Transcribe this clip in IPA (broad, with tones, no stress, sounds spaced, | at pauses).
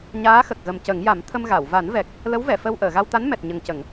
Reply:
ɲ aː˧˥ x ə˨˩ k̚ ɣ ə˨˩ m c ə˨˩˦ ŋ j a˨˩˦ m t̪ʰ ə˧ m ɣ a˨˩˨ w v a˨˩˦ n v ɛ˨˩ k̚ | l ə˧˥ w v ɛ˨˩˨ f ə˧ w ʔ əː˨˩˨ ɣ a˧ w t̪ a˧˥ n m ɛ˨˩ t̚ ɲ ə˨˩ ŋ c ə˨˩˨ ŋ